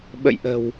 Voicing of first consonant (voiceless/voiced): voiced